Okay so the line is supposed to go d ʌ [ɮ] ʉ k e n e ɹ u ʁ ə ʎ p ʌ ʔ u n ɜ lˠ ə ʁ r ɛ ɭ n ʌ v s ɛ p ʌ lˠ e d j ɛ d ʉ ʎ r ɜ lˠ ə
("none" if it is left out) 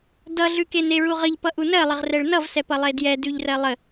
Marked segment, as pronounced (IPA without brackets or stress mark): ɮ